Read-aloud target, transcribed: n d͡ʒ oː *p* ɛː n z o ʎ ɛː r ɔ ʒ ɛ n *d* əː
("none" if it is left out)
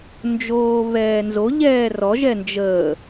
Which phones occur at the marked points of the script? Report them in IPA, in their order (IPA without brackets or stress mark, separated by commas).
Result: β, d͡ʒ